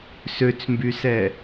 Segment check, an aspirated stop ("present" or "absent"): absent